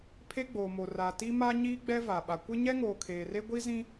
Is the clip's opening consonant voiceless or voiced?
voiceless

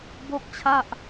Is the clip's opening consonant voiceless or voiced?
voiced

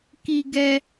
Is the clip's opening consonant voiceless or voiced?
voiceless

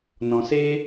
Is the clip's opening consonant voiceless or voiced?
voiced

